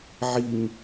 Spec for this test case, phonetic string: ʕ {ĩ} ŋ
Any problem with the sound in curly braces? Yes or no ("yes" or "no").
yes